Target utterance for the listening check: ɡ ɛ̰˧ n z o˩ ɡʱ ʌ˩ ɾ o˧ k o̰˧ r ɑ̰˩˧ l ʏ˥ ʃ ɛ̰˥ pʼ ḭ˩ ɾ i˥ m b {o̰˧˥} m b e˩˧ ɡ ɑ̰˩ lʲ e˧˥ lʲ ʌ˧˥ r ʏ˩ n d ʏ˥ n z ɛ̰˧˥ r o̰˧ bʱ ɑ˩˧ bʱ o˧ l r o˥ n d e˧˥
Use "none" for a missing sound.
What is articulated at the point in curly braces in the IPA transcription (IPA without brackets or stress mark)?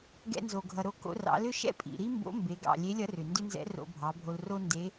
o̰˧˥